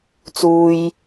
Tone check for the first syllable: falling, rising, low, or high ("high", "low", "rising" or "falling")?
high